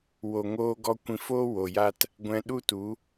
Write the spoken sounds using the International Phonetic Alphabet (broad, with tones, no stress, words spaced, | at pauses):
wo˨ŋoː˧ɡɔ˧ kʷĩ˧foː˦ wo˨ja˦t | ɡʷɛ̃˧ɗu˦tu˨˦